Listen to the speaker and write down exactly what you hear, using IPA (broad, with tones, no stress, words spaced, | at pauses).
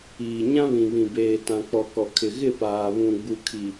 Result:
iː˨ɲã˦βĩ˨ βĩ˨beː˨tã˨k͡pɔ˨ kɔ˨kʰɪ˨ ɣɪ˦˨paː˨ βũ˨ɡ͡bu˨kʰi˨